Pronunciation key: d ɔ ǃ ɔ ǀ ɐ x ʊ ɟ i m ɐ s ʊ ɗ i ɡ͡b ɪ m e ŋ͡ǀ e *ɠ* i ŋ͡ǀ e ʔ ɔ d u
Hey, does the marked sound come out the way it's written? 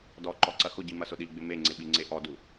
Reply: no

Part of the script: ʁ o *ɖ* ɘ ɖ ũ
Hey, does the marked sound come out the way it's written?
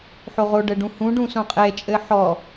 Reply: yes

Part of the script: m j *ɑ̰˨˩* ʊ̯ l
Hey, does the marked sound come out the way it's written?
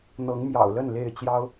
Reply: yes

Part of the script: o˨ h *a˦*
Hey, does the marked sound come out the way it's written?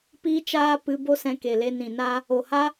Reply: yes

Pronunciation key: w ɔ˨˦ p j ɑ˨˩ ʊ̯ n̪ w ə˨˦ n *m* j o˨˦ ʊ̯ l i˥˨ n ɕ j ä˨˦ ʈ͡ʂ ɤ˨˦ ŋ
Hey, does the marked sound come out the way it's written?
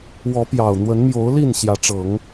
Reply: yes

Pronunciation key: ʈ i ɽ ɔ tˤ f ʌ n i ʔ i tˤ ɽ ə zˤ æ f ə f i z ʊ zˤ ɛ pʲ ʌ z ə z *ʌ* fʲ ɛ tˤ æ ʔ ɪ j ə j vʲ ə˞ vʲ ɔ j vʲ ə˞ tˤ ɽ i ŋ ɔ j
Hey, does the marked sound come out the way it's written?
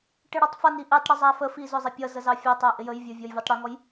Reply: no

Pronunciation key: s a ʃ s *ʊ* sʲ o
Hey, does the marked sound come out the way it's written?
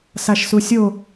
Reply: no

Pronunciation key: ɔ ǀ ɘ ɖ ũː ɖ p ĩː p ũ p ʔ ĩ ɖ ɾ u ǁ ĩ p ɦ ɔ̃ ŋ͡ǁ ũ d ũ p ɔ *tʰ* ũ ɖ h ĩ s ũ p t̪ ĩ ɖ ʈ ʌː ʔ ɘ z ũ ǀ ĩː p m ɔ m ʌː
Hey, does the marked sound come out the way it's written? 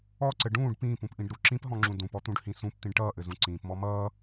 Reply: no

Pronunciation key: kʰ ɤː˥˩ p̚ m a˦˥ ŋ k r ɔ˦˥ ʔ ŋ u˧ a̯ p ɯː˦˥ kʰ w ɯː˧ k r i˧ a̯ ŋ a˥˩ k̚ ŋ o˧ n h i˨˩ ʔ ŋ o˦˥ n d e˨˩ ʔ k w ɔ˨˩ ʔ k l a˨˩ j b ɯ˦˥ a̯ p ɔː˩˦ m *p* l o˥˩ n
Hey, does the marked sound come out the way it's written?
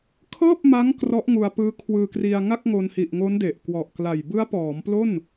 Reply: yes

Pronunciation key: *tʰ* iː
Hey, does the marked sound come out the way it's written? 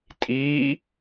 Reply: no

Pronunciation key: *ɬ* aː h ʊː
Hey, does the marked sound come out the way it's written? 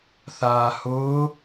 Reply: no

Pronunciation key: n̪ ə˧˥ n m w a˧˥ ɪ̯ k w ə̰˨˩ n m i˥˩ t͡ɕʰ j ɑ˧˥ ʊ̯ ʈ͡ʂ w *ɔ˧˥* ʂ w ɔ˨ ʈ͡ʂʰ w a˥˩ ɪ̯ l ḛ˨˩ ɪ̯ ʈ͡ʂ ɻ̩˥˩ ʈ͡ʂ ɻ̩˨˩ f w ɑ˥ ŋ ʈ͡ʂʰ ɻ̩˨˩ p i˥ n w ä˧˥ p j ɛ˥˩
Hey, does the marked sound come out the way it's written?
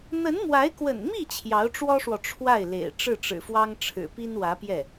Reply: no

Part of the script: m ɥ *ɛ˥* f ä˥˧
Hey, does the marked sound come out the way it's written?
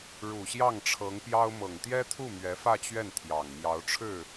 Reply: no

